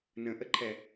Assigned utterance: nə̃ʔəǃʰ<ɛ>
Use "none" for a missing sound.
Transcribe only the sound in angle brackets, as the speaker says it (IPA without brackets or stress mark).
ɛ